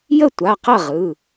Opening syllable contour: falling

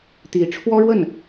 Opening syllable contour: rising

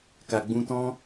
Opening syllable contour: low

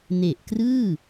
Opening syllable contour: low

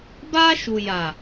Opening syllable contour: high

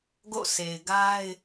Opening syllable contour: falling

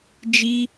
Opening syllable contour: high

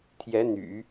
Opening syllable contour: rising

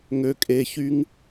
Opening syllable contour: low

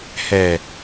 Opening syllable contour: low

